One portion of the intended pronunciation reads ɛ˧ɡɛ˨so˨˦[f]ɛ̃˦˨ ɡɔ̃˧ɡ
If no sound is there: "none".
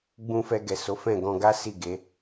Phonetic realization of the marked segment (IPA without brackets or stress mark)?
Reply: f